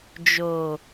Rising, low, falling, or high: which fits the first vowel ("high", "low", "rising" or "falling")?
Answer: low